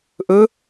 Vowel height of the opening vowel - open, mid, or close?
mid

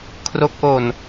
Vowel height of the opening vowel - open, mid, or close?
mid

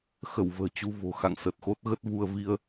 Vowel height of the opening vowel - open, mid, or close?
mid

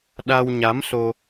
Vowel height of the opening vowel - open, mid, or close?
open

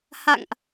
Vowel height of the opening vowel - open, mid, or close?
open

